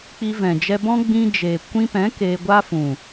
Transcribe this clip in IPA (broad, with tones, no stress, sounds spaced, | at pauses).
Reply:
k͡p i˧ v ɛ̃˨ d͡ʒ ɛ˧ b ɔ̃˦ ɡ͡b ĩ˧ d͡ʒ eː˨ kʷ ĩ˧ p ɛ̃˨˦ k eː˧ ɡʷ a˦ f ũ˨